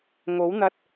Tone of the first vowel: rising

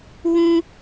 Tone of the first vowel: high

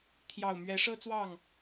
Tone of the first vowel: low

